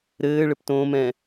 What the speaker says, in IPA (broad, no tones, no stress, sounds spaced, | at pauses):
ɾ ɘː ɭ ɘ p t õː m ɛ̃